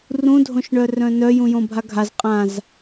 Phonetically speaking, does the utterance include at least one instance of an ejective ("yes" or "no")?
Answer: yes